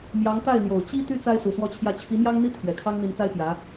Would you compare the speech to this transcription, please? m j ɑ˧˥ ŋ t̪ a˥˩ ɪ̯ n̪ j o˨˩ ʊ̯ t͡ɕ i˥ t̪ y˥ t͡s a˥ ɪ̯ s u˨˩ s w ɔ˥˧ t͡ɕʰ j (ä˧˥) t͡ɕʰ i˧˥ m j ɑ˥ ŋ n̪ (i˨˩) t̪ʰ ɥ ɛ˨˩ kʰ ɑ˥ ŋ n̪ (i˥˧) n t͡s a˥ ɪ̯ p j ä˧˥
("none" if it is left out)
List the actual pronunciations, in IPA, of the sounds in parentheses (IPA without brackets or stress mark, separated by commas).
ä˥˩, i˥, i˧˥